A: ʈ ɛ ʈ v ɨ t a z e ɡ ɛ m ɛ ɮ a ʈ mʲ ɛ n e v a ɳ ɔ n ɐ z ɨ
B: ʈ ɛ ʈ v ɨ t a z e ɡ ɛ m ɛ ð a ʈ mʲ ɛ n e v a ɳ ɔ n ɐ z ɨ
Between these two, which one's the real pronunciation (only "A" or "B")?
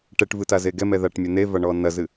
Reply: B